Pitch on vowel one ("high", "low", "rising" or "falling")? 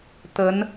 rising